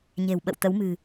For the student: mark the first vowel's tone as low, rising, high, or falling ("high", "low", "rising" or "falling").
low